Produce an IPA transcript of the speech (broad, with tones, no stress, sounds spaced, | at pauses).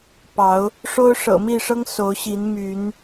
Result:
p ɑ˨˦ ʊ̯ | ʂ o˦ ʊ̯ ʂ ɤ̰˨˩ m i˥˨ ʂ ɤ˦ ŋ s o˨˦ ʊ̯ ɕ i˨˦ n m y˨˦ n